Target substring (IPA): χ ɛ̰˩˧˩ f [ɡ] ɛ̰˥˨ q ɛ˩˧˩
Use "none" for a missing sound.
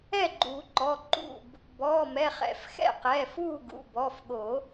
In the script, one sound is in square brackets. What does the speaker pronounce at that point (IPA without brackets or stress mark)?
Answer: x